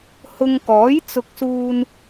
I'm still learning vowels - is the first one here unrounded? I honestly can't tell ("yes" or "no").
no